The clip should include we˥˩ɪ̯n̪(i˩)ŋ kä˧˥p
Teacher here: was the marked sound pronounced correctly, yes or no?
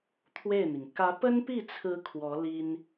yes